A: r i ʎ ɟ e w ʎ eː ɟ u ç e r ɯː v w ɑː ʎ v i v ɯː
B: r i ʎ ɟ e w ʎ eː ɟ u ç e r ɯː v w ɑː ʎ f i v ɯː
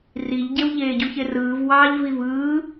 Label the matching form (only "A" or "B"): A